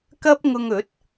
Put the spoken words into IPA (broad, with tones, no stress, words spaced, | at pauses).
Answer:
kɐ˥p̚ŋʊ˧ŋɵ˨˥t̚